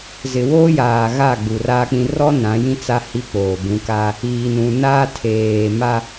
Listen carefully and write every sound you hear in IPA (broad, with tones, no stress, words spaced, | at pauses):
zɪ˨ woː˦jaː˨ɣa˦˨ ɡ͡bu˨raː˦k͡pĩ˦ rɔ˦ nã˨˦jĩ˦t͡sa˦ hi˦k͡poː˨ bũ˨˦ka˦ | iː˨nũ˨naː˦ tʰeː˨ma˦